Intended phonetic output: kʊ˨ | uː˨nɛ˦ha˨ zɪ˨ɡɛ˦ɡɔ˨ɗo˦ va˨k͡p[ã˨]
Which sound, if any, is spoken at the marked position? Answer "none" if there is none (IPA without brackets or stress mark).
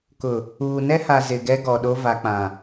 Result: ã˨